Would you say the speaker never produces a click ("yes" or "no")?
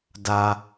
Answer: yes